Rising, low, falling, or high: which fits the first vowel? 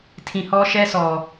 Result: low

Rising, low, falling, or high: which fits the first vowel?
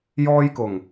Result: high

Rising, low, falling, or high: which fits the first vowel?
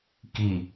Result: low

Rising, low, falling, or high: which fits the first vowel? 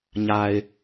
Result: low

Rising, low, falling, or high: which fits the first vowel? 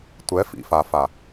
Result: rising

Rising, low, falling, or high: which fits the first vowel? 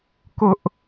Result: high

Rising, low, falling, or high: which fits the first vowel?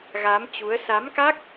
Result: rising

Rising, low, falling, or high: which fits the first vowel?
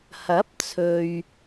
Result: rising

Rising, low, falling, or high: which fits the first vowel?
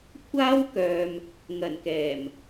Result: high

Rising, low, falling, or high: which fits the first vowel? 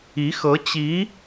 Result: rising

